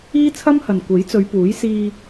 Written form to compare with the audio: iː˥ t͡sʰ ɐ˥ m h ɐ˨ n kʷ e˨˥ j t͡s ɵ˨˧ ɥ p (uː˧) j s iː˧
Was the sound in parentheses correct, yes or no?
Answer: no